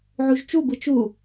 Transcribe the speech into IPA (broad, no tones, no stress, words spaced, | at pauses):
ʕuʒt͡ʃubɯ t͡ʃu